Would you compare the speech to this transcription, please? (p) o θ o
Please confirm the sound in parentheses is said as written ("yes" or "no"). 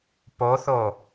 yes